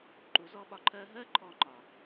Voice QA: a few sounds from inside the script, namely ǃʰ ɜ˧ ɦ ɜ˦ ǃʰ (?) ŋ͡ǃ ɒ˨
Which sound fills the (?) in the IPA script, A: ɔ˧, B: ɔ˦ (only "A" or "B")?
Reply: A